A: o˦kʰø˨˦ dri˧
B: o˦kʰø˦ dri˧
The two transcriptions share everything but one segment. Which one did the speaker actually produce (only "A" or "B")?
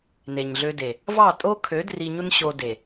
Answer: A